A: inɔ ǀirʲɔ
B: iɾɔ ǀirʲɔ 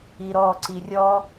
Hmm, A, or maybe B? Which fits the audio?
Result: B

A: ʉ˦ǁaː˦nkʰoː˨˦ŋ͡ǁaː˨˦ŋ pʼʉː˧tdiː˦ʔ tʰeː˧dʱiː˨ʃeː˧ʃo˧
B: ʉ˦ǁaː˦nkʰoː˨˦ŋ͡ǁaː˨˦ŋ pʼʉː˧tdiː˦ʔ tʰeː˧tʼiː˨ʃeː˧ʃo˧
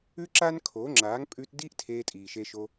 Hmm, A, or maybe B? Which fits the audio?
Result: B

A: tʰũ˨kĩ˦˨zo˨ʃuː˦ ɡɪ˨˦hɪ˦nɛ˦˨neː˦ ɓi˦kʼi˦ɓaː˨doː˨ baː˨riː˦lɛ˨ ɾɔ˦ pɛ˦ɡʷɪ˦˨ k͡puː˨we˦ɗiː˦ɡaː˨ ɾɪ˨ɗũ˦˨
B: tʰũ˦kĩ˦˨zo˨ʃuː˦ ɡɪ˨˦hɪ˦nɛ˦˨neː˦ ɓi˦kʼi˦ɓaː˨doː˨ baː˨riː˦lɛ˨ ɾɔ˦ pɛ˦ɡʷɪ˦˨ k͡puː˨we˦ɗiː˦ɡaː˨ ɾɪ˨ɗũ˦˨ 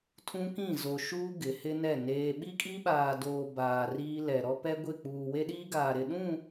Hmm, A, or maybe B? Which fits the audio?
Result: B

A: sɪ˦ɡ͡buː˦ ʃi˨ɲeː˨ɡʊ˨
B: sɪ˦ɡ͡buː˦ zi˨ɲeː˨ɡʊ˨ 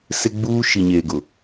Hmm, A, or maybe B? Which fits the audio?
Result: A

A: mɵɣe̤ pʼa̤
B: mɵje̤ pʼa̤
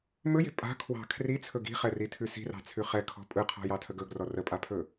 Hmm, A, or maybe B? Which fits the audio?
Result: B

